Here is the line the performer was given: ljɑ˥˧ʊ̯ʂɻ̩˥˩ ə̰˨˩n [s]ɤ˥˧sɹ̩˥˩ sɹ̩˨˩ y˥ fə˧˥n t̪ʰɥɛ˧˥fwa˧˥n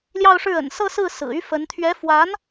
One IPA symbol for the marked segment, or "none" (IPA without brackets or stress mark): s